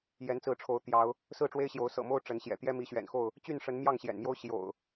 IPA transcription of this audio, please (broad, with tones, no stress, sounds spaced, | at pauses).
j ɛ˨˦ n t͡s ɹ̩˨˦ ʈ͡ʂʰ o˨˦ ʊ̯ t̪ j ɑ˨˦ ʊ̯ | s ɹ̩˥˨ ʈ͡ʂ w e˦ ɪ̯ ɕ j o˨˦ ʊ̯ s ɤ̰˨˩ m o˦ ʊ̯ ʈ͡ʂ ə˨˦ n ɕ j ɛ̰˨˩ t̪ j ɛ˦ m i˨˦ ɕ ɥ ɛ̰˨˩ n x o˥˨ ʊ̯ | t͡ɕ y˥˨ n ʂ ə˨˦ n m j ɑ˥˨ ŋ ɕ j ɛ̰˨˩ n m j o˦ ʊ̯ ɕ j o̰˨˩ ʊ̯